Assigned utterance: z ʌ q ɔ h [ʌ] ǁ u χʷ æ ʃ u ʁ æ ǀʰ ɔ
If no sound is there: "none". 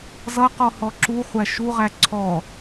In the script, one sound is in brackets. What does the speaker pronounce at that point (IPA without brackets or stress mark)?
ɔ